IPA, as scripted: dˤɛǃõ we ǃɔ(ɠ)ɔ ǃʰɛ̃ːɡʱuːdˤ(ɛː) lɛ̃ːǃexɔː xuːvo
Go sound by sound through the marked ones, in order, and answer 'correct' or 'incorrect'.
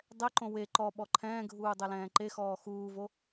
incorrect: ɓ, incorrect: ɛ

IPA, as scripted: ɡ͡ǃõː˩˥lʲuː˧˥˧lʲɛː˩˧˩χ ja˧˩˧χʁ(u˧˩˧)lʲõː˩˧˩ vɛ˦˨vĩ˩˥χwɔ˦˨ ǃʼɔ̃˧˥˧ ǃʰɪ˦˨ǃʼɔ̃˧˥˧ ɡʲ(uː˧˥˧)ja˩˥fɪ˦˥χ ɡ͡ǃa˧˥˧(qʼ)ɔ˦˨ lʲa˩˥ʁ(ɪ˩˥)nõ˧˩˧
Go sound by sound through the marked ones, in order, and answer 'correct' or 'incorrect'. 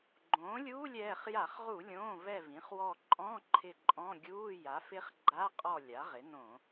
correct, correct, correct, correct

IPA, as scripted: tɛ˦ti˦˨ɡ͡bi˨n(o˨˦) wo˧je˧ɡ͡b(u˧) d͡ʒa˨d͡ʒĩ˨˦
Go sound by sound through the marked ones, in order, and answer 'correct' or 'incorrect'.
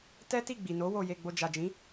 correct, incorrect: o˧

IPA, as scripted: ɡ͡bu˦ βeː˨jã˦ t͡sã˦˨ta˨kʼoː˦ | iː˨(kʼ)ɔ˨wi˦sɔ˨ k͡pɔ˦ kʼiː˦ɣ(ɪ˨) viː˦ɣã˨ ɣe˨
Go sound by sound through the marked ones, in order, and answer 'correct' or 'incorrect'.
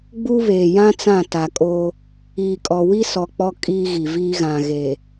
correct, incorrect: i˨

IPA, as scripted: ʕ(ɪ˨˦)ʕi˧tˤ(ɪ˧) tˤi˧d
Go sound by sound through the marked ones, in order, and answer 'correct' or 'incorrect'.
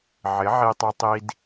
correct, correct

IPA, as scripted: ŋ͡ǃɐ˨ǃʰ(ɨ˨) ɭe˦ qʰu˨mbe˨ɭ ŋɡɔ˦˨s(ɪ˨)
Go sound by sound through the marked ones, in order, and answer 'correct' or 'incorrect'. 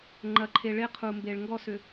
incorrect: e˨, incorrect: ʏ˨

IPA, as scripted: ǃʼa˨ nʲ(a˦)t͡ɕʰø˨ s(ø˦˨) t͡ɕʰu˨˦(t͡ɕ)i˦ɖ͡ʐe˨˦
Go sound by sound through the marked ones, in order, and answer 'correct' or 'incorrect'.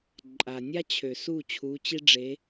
correct, incorrect: u˦˨, correct

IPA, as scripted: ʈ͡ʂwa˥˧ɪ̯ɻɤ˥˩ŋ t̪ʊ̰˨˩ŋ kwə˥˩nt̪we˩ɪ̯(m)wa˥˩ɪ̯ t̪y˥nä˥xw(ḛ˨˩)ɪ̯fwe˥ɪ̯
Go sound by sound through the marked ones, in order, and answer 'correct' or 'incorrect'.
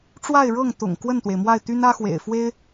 correct, correct

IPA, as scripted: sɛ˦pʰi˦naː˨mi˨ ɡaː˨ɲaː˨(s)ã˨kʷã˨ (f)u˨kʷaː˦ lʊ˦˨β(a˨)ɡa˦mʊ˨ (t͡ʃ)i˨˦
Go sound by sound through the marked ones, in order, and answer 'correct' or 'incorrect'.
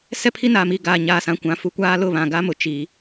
correct, correct, incorrect: ã˨, correct

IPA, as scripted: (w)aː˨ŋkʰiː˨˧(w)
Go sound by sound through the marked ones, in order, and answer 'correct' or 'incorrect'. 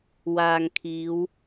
correct, correct

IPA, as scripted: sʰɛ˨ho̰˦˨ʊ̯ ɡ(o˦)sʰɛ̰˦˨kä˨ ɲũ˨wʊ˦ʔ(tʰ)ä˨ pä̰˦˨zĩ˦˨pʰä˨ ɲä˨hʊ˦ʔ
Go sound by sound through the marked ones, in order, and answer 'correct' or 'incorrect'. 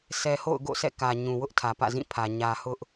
incorrect: o̰˦˨, correct

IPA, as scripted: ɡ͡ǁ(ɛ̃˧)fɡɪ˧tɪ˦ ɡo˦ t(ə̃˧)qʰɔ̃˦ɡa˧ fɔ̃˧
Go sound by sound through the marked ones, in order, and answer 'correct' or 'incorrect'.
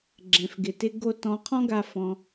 correct, incorrect: ɔ̃˧

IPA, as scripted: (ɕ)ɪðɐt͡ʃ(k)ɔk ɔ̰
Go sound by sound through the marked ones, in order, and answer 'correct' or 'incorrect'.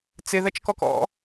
incorrect: t͡s, correct

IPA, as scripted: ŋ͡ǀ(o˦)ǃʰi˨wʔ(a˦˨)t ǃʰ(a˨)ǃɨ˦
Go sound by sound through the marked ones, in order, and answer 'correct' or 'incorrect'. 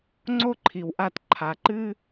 correct, correct, correct

